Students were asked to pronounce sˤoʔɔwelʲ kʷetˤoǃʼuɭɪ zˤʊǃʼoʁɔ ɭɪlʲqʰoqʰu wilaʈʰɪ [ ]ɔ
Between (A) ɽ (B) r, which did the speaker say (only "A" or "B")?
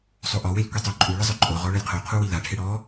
A